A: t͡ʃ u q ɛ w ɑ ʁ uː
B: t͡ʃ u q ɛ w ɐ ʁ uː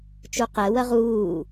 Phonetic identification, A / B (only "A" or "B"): B